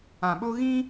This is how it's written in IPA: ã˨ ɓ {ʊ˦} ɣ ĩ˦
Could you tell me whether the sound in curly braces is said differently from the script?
no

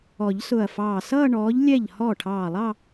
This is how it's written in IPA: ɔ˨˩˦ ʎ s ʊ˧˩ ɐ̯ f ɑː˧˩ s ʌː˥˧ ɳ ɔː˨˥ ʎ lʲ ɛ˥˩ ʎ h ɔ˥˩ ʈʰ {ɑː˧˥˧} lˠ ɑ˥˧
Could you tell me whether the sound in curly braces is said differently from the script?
yes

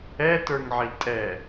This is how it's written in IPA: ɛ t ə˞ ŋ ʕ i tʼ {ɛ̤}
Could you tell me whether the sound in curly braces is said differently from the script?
yes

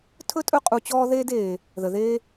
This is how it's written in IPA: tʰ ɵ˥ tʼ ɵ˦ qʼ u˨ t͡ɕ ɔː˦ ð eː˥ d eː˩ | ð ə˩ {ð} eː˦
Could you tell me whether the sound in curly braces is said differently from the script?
no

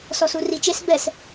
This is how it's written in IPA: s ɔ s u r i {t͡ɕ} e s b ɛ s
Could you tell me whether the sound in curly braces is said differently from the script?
yes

